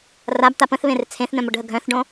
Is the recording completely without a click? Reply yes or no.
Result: yes